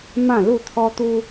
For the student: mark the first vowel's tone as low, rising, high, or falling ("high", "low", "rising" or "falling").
falling